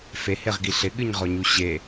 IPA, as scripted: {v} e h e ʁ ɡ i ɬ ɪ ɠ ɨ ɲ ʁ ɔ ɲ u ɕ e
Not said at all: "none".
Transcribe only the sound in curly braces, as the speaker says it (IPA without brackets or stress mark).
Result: f